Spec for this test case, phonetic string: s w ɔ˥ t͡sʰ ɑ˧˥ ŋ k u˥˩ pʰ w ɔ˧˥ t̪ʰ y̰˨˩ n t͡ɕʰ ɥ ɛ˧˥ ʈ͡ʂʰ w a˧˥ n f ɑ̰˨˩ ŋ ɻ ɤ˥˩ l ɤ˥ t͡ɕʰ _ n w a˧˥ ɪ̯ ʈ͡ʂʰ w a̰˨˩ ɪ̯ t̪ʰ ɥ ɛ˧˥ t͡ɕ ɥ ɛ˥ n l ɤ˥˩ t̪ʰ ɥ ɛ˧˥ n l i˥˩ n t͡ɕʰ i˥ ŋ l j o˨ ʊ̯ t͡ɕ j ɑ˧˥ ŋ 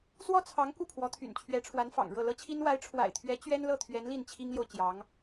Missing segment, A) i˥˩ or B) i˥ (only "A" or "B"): B